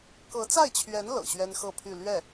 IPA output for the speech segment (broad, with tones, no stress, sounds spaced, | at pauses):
k ɤ˧˥ t͡s a˥˩ ɪ̯ t͡ɕʰ ɥ ɛ˧˥ n l ɤ̰˨˩ ɕ ɥ ɛ˥ n x ɤ˥˧ pʰ y˥˧ l ɥ ɛ˥˩